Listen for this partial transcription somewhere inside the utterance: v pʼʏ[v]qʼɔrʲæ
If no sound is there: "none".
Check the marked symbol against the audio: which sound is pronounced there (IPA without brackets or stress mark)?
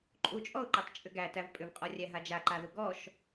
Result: v